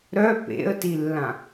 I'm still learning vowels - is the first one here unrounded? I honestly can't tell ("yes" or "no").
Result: no